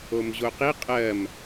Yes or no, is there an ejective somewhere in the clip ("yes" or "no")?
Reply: yes